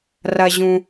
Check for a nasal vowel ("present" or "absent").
present